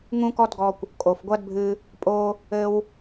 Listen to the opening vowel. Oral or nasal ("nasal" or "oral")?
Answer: nasal